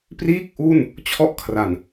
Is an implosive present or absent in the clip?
absent